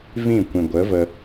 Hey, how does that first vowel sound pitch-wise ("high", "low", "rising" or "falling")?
falling